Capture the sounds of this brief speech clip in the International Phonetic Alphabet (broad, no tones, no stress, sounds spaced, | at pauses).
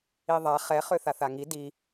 i ðˤ a χ ɛ χ ø θ a θ a ŋ i d i